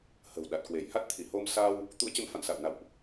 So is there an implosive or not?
yes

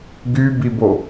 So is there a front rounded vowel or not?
yes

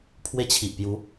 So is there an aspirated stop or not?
yes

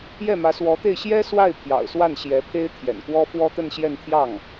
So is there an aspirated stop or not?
yes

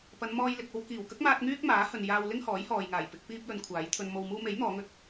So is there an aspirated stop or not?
yes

